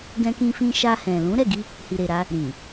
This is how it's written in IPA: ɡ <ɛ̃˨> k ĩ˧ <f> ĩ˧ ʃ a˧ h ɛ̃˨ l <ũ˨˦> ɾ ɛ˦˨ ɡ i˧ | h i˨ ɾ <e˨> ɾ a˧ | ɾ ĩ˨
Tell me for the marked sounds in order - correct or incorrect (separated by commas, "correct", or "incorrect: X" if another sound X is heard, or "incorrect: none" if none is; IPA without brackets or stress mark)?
incorrect: ɛ̃˧, correct, correct, correct